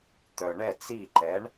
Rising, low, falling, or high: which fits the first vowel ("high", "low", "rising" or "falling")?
low